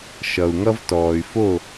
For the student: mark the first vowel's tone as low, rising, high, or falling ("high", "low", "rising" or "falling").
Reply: low